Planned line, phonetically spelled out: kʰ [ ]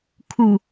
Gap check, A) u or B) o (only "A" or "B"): A